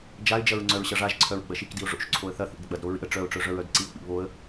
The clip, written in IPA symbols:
d͡ʒaɪ̯d͡ʒɐɹ ŋ͡ǀœɹɕɐʐaʒǀʰœɹ ɡ͡bɐʃikdiʊ̯ ʐo̰ʃ ǀʰoə̯θɐθḭd ɡ͡bɐdɾo ɹḭə̯ ʈ͡ʂœʊ̯ʈ͡ʂœ ʐœɹœdǀiʊ̯k͡pḭ βoə̯

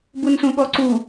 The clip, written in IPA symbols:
bunsũɠɔǀu

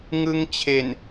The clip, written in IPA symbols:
ŋɯ˦˥ŋt͡ɕʰe˨˩n

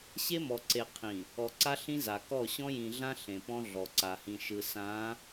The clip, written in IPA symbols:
ɕe˦mɔ˨ǀe˨ qʰĩ˨ | ɔ˨ǀa˦ ɬĩ˦za˨kɔ˦˨ ɕɔ̃˦jĩ˨ɮã˦ ɬẽ˨pɔ̃˦ ɮɔ˨ǀa˨hĩ˨ʃɯ˨ sã˨˦

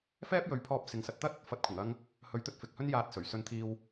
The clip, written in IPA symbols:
fɛː˥p̚ jɵ˨˧ɥpʰɔː˧p̚ sɪ˨˧ŋsɐ˨˥t̚t̪ɐ˥t̚ | fɐ˨˥t̚kʷʰɪ˨˩ŋɐ˧ŋ | hɵ˨˥ɥt̪ɵ˧t̚ fɪ˨k̚hɵ˥n jaː˧t̚sɵ˨˩ɥsɵ˧nt̪ʰiː˧w

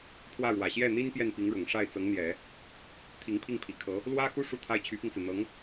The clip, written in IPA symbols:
pʰwä˥˩ɻwä˨˩ ɕjɛ˥˩n̪i˥n pjɛ˥˩npi˧˥ŋɻʊ˨˩ŋ ʂa˥˩ɪ̯t͡sɤ˧˥ŋn̪jɛ˨˩˦ | t̪ʰi˧˥ŋpʰi˥˩ŋpʰi˨˩kʰɤ˧˥ | lwä˥xu˥˧ ʂu˥˧t̪ʰa˥˩ɪ̯ t͡ɕʰy˧˥pi˧ŋt͡sɹ̩˩n̪ɤ˧˥ŋ

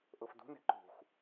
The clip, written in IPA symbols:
ʔɤfdṳ nɛ̤ǃṳxʷ

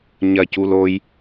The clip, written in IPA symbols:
ɲɐc uloj

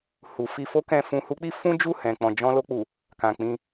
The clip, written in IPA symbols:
hu˨fi˧fo˦kɛ̃˧ fũ˧hu˦k͡pi˦ fũ˦d͡ʒu˦˨hɛ̃˨k͡pɔ̃˨ d͡ʒɔ̃˧lo˧k͡pu˨ | kã˨k͡pĩ˧

